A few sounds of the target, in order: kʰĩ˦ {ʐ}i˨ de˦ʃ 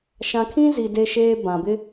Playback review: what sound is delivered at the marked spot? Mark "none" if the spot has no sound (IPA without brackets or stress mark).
z